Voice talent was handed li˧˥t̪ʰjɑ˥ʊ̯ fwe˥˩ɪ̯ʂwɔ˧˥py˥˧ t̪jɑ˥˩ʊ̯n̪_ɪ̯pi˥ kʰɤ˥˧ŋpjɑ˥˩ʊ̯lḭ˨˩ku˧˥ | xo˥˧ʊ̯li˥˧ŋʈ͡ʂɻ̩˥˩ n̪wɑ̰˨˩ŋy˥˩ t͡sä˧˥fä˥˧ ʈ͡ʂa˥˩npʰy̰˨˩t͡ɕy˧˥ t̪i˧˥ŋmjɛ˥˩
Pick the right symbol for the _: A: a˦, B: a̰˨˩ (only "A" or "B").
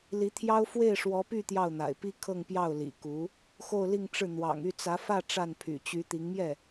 B